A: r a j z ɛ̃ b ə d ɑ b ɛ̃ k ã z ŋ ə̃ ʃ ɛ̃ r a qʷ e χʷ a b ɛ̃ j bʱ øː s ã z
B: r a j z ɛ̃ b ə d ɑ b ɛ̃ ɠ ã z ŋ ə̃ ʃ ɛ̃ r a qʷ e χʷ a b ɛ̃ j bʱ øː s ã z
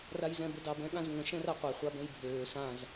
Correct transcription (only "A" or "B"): B